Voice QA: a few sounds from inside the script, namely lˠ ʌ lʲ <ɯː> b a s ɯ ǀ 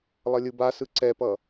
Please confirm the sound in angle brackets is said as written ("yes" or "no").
no